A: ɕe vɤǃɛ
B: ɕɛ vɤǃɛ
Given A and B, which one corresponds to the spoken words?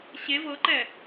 A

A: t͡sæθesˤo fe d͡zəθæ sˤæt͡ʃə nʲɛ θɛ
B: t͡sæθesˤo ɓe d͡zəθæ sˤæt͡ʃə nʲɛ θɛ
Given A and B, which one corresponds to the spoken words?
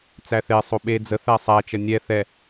B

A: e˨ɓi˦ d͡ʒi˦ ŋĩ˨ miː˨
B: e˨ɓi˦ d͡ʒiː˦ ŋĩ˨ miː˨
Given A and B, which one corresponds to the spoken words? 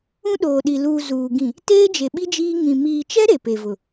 B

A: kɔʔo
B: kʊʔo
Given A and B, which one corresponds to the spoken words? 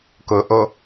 B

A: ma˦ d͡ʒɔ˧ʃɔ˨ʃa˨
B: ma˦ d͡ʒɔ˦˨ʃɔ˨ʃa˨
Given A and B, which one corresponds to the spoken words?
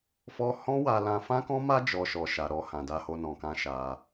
A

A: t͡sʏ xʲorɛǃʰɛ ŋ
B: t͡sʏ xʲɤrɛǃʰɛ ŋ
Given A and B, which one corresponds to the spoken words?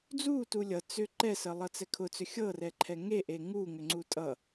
B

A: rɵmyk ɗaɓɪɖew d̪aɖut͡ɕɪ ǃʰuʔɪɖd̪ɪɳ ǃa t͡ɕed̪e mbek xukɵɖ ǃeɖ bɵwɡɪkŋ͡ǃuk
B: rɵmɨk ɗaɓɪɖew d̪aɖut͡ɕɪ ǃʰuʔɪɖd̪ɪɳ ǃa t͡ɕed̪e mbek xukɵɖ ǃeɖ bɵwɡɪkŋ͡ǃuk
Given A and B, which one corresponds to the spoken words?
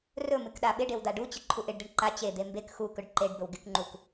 B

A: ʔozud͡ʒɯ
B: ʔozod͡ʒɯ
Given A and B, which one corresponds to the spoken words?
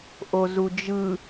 A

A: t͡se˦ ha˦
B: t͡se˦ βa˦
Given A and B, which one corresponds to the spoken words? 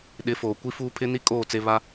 B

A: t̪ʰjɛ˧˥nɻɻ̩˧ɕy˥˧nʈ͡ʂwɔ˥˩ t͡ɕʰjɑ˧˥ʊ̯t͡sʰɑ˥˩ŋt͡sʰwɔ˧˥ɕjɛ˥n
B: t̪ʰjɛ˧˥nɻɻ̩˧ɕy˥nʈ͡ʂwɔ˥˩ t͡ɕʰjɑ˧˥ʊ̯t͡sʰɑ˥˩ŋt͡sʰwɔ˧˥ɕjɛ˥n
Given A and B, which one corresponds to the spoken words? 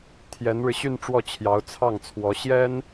A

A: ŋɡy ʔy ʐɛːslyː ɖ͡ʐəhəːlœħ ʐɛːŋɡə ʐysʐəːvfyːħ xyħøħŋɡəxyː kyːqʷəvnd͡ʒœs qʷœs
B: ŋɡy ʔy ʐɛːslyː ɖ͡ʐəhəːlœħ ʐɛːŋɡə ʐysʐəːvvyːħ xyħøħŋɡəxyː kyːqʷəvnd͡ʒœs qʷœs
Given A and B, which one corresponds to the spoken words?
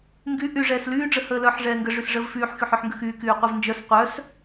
A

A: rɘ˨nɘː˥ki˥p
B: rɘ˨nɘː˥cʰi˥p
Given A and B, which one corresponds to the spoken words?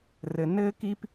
A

